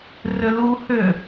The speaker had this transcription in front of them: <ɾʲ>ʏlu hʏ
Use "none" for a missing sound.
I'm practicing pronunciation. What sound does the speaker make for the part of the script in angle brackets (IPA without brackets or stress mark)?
r